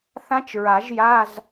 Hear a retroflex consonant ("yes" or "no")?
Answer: no